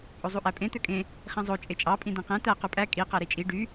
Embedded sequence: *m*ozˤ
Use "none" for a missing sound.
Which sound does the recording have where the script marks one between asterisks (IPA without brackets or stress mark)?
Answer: pʼ